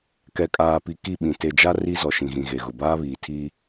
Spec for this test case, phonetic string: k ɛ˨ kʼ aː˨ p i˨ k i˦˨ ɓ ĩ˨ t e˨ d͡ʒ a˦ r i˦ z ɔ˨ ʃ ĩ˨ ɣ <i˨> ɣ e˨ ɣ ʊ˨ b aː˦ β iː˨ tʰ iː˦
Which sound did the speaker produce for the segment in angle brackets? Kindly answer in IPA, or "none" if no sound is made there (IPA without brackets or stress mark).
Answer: ĩ˨